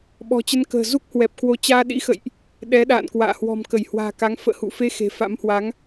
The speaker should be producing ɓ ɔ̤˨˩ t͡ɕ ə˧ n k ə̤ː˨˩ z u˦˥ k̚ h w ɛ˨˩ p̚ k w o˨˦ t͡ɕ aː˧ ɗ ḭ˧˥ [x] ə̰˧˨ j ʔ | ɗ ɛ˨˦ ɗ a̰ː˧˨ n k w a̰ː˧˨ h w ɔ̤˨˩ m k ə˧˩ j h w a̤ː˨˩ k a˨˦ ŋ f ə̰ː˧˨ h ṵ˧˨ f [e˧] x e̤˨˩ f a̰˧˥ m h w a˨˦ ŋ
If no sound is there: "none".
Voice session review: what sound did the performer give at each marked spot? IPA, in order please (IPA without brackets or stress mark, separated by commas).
x, e˧